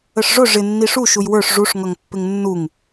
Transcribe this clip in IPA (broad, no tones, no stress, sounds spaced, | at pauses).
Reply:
ə ʂ ʐ ʊ ʐ ɪ nː i ʂ u ʃ u j w ə˞ ʂ ʐ u ʂ ŋ ʌ ŋ pː ɪ ŋ nː u ŋ